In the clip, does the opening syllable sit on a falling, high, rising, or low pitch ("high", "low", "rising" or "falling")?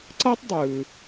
high